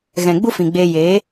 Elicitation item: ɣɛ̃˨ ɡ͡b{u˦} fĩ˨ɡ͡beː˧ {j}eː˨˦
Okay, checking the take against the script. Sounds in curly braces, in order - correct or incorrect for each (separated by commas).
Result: correct, correct